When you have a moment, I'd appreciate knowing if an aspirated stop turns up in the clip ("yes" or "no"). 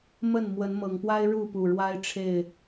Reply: yes